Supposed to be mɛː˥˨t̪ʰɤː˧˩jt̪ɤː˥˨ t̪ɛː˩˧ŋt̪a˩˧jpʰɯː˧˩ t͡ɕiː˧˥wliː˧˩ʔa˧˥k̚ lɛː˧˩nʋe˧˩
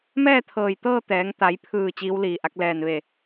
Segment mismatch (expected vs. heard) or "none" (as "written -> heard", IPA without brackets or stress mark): none